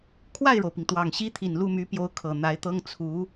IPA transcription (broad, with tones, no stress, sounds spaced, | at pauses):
kʰ w a˥˩ ɪ̯ ɻ o˩ ʊ̯ p i˩ ŋ t̪ w ɑ˨˩ ŋ ɕ i˥ t̪ʰ i˨˩ n l u˥˩ m y˧˥ p j o˧˥ ʊ̯ kʰ ɤ˨˩ n̪ a˧˥ ɪ̯ t̪ ɤ˥ ŋ t͡sʰ u˧˥